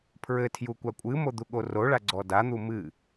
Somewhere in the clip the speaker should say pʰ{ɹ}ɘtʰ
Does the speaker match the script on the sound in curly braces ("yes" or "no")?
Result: yes